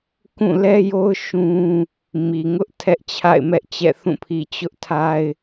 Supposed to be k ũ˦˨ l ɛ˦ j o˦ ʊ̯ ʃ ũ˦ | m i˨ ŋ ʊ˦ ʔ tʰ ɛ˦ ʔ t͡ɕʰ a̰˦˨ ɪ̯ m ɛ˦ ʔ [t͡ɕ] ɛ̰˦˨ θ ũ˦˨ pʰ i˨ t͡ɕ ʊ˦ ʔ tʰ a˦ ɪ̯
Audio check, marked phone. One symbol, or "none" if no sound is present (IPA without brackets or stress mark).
t͡ɕ